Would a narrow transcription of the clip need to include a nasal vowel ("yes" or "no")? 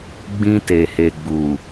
yes